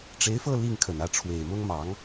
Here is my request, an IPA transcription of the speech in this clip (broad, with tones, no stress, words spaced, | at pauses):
ʈ͡ʂe˧˥ɪ̯fɤ˥˧ li˥˩ŋkʰə˨˩nä˥˩ ʈ͡ʂʰwe˨˩ɪ̯mʊ˥ŋmɑ˧˥ŋ